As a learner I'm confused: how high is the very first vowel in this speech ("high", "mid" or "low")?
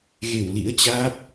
mid